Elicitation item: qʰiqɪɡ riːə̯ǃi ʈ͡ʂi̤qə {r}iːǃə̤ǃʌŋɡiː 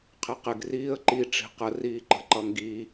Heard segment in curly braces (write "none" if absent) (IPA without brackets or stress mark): r